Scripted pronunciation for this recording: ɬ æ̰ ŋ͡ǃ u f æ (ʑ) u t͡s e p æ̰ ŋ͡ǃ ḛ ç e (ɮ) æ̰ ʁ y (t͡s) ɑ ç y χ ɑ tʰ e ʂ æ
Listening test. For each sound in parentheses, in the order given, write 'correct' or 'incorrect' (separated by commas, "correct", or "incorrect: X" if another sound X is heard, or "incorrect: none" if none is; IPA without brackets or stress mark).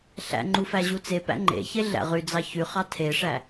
correct, correct, incorrect: d͡z